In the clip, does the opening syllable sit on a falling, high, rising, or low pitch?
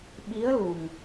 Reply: rising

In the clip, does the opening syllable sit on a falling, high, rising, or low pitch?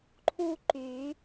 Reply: high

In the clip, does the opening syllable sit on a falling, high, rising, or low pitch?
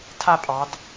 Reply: falling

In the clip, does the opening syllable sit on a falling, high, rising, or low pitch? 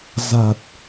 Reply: low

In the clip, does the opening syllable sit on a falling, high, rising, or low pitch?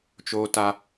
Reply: high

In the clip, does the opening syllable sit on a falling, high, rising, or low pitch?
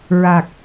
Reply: low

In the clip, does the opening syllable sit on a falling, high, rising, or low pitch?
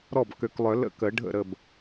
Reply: falling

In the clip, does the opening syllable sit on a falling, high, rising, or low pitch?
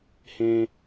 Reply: high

